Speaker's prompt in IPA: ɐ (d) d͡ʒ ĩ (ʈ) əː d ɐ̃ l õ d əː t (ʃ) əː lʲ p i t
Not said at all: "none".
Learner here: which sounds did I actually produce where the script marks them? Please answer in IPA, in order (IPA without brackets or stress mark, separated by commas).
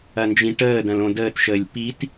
n, ʈ, ʃ